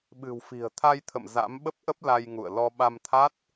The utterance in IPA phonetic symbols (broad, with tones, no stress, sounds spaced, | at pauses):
ɓ ɨ̤˨˩ w f i̤˨˩ ə̯ t̪ʰ a˧ j t̪ʰ ə̰˧˨ m z a̰˧˥ m ɓ ə˦˥ p̚ ʔ ə˦˥ p̚ l a˧ j ŋ ṵ˧˨ ə̯ l ɔ˧ ɓ a˧ m t̪ʰ a˦˥ t̚